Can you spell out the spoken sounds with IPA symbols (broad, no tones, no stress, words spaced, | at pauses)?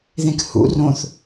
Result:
ðẽkhṵ rõθ